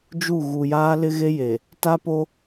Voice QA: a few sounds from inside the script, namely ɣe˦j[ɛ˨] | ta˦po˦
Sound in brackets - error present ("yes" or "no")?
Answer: yes